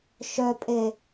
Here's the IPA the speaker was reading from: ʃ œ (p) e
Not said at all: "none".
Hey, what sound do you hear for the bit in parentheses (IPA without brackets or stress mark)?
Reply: pʼ